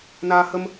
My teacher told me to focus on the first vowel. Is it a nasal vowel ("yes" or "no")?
no